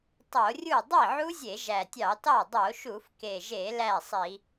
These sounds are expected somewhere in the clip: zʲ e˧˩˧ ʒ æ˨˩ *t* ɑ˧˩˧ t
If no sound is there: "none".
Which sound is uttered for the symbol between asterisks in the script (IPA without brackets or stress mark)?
tʲ